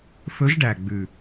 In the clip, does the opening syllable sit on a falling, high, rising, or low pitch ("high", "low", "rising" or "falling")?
rising